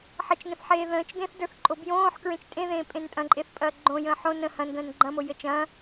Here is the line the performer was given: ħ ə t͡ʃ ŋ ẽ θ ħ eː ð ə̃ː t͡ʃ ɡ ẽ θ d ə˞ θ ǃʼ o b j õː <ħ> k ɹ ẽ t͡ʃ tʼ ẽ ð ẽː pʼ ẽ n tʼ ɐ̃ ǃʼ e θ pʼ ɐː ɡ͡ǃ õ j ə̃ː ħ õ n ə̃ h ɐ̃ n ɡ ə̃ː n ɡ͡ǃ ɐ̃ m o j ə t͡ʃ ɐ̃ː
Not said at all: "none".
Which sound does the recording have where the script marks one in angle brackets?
ħ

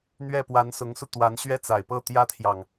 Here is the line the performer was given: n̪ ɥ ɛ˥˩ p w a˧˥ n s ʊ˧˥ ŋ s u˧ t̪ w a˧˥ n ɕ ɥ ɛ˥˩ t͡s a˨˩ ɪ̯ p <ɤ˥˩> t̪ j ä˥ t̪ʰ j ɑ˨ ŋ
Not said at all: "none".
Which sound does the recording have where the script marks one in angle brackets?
ɤ˥˩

